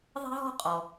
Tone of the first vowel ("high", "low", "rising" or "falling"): high